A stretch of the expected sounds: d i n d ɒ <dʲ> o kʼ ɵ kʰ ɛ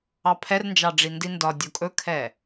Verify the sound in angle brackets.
correct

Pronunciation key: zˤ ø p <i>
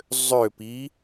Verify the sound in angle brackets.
correct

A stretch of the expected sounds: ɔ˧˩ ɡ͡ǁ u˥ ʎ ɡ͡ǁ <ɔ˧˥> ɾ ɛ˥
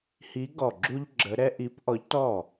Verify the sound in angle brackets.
incorrect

